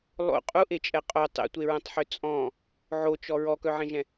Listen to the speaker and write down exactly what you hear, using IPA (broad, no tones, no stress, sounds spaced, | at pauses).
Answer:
lˠ o̰ qʼ u ʔ e t͡ʃʼ ɛ qʼ o tˤ ḛ tʷ e ɹ ɛ̃ tˤ ħ ø t͡sʼ ɔ̃ | ʕ o t͡ʃ ɔ ɹ ɔ k œ ʕ ẽ ʒ ɛ̃